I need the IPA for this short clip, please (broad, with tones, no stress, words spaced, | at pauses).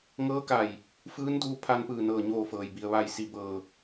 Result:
ŋɤː˧˥ka˧˩j | fɯː˧˥nduː˧ pʰa˧npɯː˧˩nɤː˧˩ ɲoː˧˩fɤː˩jbi˩ə̯ ʋa˧˩j si˧˩bɤː˧˩